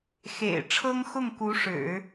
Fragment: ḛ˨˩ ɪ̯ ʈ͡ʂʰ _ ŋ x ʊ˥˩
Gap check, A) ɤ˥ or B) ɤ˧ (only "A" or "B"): A